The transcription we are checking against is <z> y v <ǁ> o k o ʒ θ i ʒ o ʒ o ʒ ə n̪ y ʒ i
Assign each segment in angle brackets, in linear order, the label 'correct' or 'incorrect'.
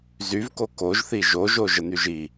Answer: correct, incorrect

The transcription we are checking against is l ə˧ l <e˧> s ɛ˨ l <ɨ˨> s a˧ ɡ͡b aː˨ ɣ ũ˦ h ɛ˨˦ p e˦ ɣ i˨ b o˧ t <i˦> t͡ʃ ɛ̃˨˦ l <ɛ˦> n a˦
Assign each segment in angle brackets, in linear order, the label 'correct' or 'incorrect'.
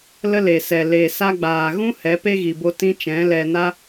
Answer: incorrect, incorrect, incorrect, incorrect

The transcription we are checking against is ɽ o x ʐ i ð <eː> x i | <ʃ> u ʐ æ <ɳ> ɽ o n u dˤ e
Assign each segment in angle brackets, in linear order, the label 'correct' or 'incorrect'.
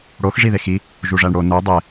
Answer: incorrect, incorrect, correct

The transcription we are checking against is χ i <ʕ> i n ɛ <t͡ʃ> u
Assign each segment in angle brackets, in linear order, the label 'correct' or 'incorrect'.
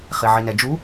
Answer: correct, incorrect

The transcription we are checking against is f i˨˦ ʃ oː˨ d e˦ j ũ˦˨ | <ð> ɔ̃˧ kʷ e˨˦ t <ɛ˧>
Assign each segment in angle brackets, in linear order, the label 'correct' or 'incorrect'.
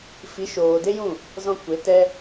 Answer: incorrect, incorrect

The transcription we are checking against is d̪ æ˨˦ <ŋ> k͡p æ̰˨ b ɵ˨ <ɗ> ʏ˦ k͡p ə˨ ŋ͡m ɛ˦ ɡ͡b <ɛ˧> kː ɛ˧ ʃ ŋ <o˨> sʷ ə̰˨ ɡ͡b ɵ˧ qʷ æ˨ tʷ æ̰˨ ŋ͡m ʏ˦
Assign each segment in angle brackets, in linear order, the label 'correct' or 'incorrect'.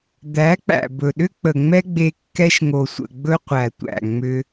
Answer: incorrect, correct, incorrect, correct

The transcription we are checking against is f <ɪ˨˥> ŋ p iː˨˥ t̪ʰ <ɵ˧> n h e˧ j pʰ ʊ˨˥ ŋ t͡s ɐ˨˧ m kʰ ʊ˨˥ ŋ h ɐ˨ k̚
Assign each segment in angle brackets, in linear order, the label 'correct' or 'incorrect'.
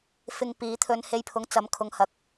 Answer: incorrect, correct

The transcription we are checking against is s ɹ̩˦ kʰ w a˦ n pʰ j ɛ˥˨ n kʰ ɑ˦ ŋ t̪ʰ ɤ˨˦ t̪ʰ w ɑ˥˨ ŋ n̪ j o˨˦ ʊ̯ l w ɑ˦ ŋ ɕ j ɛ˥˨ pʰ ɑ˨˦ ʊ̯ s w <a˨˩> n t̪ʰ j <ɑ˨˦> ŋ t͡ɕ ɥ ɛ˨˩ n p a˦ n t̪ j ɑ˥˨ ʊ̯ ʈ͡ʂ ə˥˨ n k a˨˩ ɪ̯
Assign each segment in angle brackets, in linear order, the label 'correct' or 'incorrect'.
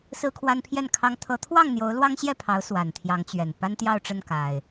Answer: correct, correct

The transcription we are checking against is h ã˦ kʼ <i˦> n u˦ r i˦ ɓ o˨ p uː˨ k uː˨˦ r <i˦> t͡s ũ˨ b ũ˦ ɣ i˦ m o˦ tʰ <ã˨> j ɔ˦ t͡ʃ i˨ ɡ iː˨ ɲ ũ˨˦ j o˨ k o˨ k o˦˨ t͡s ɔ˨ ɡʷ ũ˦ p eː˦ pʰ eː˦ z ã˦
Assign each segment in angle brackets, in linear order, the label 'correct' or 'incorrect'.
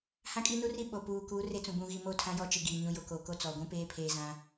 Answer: correct, incorrect, incorrect

